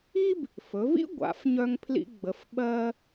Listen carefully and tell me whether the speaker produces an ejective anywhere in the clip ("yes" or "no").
no